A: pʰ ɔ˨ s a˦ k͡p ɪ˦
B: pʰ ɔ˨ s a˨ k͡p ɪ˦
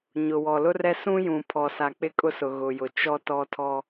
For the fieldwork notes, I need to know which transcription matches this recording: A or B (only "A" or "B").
B